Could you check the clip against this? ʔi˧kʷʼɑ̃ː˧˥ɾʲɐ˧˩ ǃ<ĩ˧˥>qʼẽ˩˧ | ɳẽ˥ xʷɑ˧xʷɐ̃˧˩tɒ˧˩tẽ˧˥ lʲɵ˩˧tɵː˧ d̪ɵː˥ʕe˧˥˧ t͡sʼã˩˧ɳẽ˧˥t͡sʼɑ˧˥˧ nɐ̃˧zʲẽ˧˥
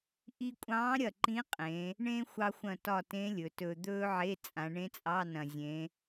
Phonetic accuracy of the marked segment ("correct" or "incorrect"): correct